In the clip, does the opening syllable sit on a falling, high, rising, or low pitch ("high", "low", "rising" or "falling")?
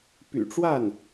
low